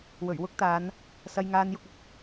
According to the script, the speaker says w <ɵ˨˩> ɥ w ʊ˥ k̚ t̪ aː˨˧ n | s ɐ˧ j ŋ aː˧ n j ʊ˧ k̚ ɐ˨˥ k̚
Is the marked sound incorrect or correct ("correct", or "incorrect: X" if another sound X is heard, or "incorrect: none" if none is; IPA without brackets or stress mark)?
correct